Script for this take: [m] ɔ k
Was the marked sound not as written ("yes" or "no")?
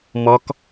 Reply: no